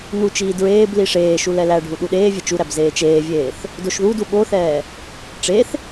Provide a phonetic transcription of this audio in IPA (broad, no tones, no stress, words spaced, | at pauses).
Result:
nut͡ʃiː dɹeːbli ʂeːʃu lɛlæɖʱu ɗuɗeːvʲe t͡ʃuɾæb zeːt͡ʃeːvʲeːθ | doʃðudu ɓoθɛː | ʈ͡ʂeθ